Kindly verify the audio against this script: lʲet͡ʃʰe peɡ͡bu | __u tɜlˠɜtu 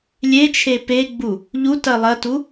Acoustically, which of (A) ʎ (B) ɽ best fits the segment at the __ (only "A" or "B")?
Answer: A